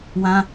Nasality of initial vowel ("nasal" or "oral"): nasal